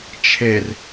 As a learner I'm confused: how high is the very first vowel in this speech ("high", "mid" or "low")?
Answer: mid